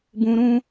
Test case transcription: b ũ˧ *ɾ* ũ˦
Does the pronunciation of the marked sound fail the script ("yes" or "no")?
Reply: no